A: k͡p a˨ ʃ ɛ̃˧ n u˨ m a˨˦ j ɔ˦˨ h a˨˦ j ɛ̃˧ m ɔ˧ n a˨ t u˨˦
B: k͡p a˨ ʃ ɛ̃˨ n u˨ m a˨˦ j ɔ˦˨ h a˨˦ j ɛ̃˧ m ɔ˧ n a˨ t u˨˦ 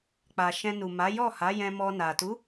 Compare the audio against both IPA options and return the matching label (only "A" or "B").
A